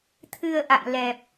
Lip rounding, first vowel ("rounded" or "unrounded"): unrounded